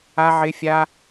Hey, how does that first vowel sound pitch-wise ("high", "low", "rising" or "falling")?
high